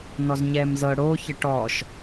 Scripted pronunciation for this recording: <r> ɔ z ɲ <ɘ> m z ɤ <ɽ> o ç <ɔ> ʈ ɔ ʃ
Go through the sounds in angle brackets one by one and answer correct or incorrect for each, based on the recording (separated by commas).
incorrect, incorrect, correct, incorrect